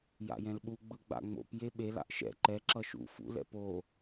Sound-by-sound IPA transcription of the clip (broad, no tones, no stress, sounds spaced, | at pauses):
j a̰ j ɛ̃ l ɓ u ɡ͡b ɯ ɡ͡b a̰ ŋ͡m o̰ p j e ɓ e l a̰ ʔ ʃ ɛ̰ ǃ ɛ ǁ ʌ ʃ ṵ f ṵ l ɛ̰ p o